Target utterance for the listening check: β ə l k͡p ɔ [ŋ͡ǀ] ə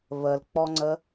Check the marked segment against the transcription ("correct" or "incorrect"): correct